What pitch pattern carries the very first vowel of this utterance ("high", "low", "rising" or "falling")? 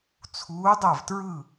rising